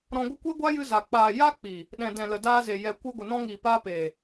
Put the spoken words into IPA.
ɾ ɔ̃˧ ɡʷ ə˦ kʷ e˦ ɡʷ a˦ j ɨ˧ z a˨ k͡p aː˨ j a˦ k͡p i˨ | ɗ ɛ̃˨ d ɛ̃˨ l ə˨ d aː˧ z e˨ j ɛ˨ kʷ ɨ˧ ɡʷ ə˨ n ɔ̃˧ ŋ iː˨ p aː˧ p eː˨

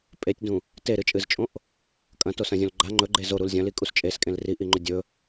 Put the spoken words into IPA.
pʼ e tʲ d ũ | t e ɾ ɨ t͡ʃʼ ɨ z t͡ʃʼ õ ʔ | kʼ ɐ̃ t o s ɐ̃ zʲ õ l ɡ͡ǃ a ŋ͡ǃ ɵ ɡ͡ǃ e z o ɾ u l zʲ ɐ̃ l i kʼ u s t͡ʃʼ e s kʼ ẽ l r i ʔ i ŋ͡ǃ ɵ dʲ ɵ

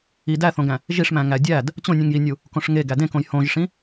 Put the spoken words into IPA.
i d æ θ õ ɡ æ̃ | ʒ i ʂ m æ̃ ŋ æ dʲ æ d | t͡ɕ õ nʲ ũ ŋ j i nʲ u | k õ ʂ ŋ e ɡ æ d ẽ k õ j h õ ʒ ʂ ĩ

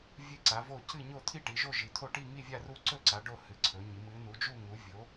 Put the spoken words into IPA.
vʲ ɨ˦˨ ǀ a˩˧ v o˦˨ c ɨ˦˨ ɲ o˦˨ t̪ʰ i˦˨ ʈ i˩˧ ʒ o˦˨ ʒ i˩˧ t̪ʰ o˦˨ ʈ i˦˨ ŋ i˦˨ vʲ a˦˨ r u˦˨ ǀ ɵ˦˨ ǀ a˩˧ ɖ o˦˨ h ɨ˩˧ ǀʰ ɵ˩˧ ɲ i˩˧ m ɨ˩˧ n u˩˧ d͡ʒ u˦˨ ŋ u˩˧ vʲ o˩˧

